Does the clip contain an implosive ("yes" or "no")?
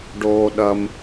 yes